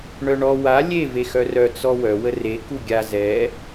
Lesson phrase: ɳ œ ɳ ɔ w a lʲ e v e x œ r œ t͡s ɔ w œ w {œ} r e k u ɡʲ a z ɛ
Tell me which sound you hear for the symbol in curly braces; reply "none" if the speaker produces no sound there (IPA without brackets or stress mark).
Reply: ə